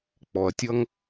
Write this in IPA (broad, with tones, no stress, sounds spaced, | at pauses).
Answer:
k͡p ɔ˩ ɐ̯ tʲ ʌ˥ ŋ